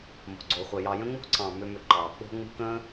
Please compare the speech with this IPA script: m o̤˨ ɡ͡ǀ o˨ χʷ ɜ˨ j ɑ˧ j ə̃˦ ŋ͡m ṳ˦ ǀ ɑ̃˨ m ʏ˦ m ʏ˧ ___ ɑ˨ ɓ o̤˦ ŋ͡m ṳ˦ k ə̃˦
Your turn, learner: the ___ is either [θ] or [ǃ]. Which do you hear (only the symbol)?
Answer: ǃ